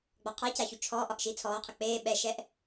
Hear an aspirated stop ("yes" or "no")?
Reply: yes